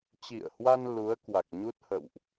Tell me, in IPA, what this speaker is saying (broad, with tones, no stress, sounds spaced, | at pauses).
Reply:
t͡ɕ ḭ˧˨ ə̯ h w a˧ n l u˨˦ ə̯ k w a˨˩ k̚ ɲ u˦˥ t̚ h ə̰˧˨ w ʔ